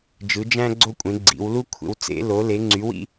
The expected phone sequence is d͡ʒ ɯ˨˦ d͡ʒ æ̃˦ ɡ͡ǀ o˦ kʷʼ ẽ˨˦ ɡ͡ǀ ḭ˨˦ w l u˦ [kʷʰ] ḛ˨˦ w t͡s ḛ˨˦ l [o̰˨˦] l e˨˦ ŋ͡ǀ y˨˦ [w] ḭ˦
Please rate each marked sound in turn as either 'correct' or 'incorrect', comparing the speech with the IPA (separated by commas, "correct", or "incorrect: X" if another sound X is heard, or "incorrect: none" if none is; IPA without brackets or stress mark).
correct, incorrect: o˨˦, correct